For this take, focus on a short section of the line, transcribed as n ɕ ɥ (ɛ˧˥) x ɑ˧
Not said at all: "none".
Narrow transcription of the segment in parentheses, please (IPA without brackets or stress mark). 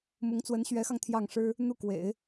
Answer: ɛ˧˥